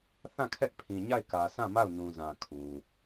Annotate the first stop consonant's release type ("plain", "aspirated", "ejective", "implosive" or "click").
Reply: aspirated